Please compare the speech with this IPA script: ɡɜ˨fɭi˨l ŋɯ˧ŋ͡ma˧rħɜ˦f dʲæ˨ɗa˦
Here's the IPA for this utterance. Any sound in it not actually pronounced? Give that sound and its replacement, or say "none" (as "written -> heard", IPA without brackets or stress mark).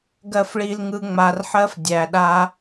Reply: none